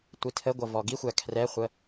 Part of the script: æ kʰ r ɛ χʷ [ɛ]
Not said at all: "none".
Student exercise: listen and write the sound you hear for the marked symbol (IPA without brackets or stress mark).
ə